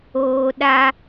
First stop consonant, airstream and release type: implosive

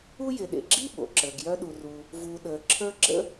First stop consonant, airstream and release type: implosive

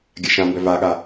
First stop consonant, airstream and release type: plain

